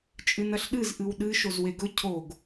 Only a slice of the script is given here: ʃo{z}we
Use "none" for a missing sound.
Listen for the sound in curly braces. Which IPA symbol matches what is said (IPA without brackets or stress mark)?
z